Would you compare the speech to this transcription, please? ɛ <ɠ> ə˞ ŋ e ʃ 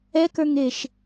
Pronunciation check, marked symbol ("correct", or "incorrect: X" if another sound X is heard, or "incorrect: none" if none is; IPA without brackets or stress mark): incorrect: k